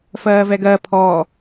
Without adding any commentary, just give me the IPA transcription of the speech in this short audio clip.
fɜːvɛɡɜ pʰɔː

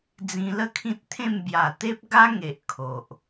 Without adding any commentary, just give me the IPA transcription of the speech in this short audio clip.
d͡zĩ˧lə˥˧kʰĩ˦t̚t̪ʰẽ˥˧m bja˨˩t̪e˦p̚ɡa˦ŋe˨ʔ kʰo˨ʔ

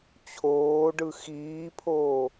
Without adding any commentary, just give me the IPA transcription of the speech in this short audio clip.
t͡ɕʰoːɖɯ xiːpʰoː

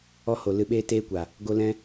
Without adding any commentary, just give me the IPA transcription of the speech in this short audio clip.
ɔ˦ho˨ lɨ˧ɓeː˦teː˦kʷa˨ | ɡo˦ lɛ̃˦

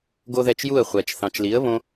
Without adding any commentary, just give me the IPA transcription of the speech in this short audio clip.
ɡo˥ðɛ˥˩t͡ʃ ju˥˩ə̯χʷɛ˩t͡ʃ θɑ̃˩t͡ʃli˩˥ə̯βõ˧

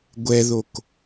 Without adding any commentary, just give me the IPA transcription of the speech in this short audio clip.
ɡʷɛðok

